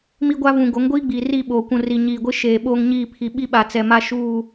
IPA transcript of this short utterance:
m i˦ ɡʷ a˦ v ũ˨ ɡ o˨˦ ŋ ɡʷ iː˦ ɡ͡b iː˨ r i˦˨ ɓ oː˨ kʷ ũ˨ r i˨ ɲ iː˨ ɡʷ ɪ˦ ʃ eː˨ ɓ oː˦ ŋ ɲ iː˦˨ pʰ i˨ ɓ i˦ ɓ a˨ t͡s ɛ˨ m a˦ ʃ uː˦˨

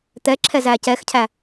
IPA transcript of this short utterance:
t̪ ɛ ǁʰ ɛ z æː c ɛ x cʰ æ

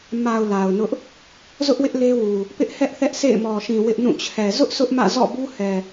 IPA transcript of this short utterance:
m a˨ ʊ̯ l a˨ ʊ̯ n ʊ˦ ʔ | z ʊ˦ ʔ w ɪ˦ ʔ l e˦ w u˨ | p ɪ˦ ʔ h ɛ˦ ʔ θ ɛ˦ ʔ sʰ ḛ˦˨ ɪ̯ m ɔ˨ ʃ ĩ˨ w ɪ˦ ʔ n ũ˦˨ t͡ɕʰ ɛ˨ z ʊ˦ ʔ sʰ ʊ˦ ʔ m ä̰˦˨ z ɔ̰˦˨ b u˦ h ɛ˨

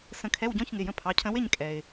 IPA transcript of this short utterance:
s ə̃˨˦ kʰ ɛ˧˥˧ w ɟ ɔ̃˧˥˧ ç ŋ ɪ˩˧˩ j ə̃˦˨ pʰ ɑ˩˧˩ cʰ ə̃˨˦ w ɪ˦˨ ɲ kʼ ɛ˩ ɪ̯

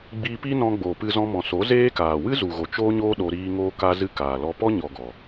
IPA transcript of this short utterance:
ɡ͡b iː˧ p i˦ n ɔ̃˧ ɡ͡b oː˨ p ɨ˧ z ɔ̃˧ m ɔ̃˨ s o˨˦ z eː˦ k aː˨ w ɨ˦ z u˨ ɣ o˨ t͡ʃ oː˦ ɲ oː˦ ɗ o˧ ɾ iː˦ ŋ oː˧ k a˧ z ɨ˧ k aː˨ l ɔ˧ p ɔ˦ ɲ ɔ˨ ɡ ɔ˨

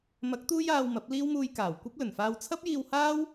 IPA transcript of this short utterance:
m ɐ˨˥ k̚ t̪ uː˥ j aː˧ w m ɐ˨˥ p̚ l iː˥ w m uː˧ j k aː˨˩ w kʷ ɐ˥ p̚ l ɵ˨˩ n f aː˧ w t͡sʰ ɐ˥ p̚ j iː˧ w h aː˥ w

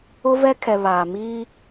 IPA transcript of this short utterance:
ʊ˦ v ɛ˦ kʰ ɛ˨ β aː˨ m iː˦

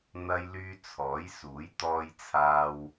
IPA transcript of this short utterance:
n̪ ɐ˧ j l yː˧ t͡sʰ ɔː˨˥ j s uː˨˥ j t̪ ɔː˧ j t͡sʰ aː˧ w

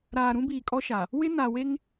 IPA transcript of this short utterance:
ɾ aː˨ ɾ ũ˦ b iː˨ kʼ ɔ˦ ʃ a˨ | w ɪ˦ n a˨ w e˦ ŋ

